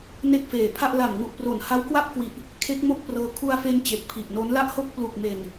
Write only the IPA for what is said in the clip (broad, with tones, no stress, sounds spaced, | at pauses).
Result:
n e˥˩ k̚ f eː˨˩ pʰ a˥˩ ʔ l a˨˩ m ŋ u˨˩ ʔ p r o˨˩ n h a˦˥ w k w a˥˩ p̚ k w i˨˩ ʔ | kʰ e˦˥ k̚ m o˥˩ k̚ p r ɤː˧ kʰ u˧ a̯ f e˧ n t͡ɕ e˨˩ k̚ pʰ i˨˩ ʔ n o˦˥ n l a˥˩ ʔ h o˥˩ k̚ p l u˨˩ k̚ m e˨˩ n